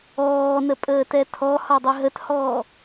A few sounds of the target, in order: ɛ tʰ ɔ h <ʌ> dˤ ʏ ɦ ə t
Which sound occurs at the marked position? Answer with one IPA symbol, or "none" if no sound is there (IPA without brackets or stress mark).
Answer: ɒ